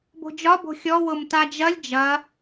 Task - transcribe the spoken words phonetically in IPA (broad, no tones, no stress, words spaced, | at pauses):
bo̤d͡ʒɒ bo̤xʲɔ wʊmtad͡ʒɐlʲ d͡ʒɐ